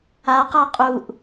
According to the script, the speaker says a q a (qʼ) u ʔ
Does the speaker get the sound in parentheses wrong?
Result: no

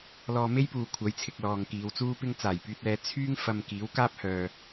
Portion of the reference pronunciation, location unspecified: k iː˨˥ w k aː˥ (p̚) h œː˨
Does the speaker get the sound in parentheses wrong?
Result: no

